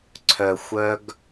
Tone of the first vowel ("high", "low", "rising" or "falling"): low